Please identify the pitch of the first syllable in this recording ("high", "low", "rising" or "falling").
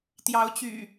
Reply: rising